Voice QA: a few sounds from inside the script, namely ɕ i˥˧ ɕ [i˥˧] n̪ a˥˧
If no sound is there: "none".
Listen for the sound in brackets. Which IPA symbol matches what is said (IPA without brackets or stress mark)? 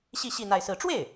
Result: i˥˧